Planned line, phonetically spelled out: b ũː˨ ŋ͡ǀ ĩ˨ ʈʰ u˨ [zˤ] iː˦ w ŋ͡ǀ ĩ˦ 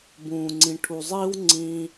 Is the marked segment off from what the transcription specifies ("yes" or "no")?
no